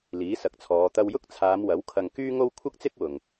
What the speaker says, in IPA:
l iː˨˥ s ɐ˨˥ k̚ t͡sʰ ɔː˨˧ t̪ ɐ˧ w j ʊ˥ k̚ t͡sʰ aː˨˧ m w ɐ˨˥ w kʰ ɐ˧ ŋ k yː˥ ŋ o˥ w kʷʰ ɐ˥ k̚ t͡s ɪ˥ k̚ w ʊ˨ ŋ

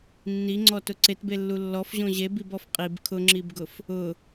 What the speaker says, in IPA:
nː i ŋ͡ǀ ɔ t ʊ ǀ e t b e lː u lː ɔ f ʑ õ ʑ e b i b ɔ f qʼ i b kʰ ʊ ŋ͡ǁ i b ɡ ʊ f | ʊ

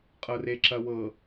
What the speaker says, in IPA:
qʼ ɤ r e ǁ ɐ w ɤ

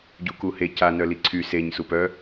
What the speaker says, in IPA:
ɟ u k u h e c a n œ l i ǀʰ y s e ɲ s u p œ

